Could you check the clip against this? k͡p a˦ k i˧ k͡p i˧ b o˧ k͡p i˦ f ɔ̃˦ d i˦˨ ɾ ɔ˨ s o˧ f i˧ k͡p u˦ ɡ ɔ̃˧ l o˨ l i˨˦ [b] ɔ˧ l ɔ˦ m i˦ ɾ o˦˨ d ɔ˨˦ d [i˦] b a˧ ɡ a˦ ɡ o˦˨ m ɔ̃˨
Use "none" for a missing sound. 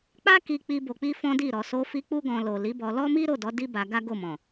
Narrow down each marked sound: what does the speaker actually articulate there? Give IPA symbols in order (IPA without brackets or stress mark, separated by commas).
b, i˦